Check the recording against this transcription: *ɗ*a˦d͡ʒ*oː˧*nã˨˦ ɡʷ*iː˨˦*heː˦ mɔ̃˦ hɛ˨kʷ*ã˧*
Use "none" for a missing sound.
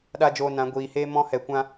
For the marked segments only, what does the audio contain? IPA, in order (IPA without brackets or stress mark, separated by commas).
ɗ, oː˧, iː˨, ã˧